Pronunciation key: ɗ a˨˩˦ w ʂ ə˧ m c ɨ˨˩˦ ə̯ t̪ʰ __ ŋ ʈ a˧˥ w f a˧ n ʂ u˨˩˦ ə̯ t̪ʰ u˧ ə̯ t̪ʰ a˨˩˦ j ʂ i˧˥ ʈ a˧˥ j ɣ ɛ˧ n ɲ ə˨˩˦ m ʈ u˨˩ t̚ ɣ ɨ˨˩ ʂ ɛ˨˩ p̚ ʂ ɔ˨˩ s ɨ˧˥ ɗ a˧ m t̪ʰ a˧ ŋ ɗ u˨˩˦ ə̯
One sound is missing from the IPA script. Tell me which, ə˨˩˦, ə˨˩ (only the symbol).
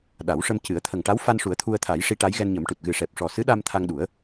ə˨˩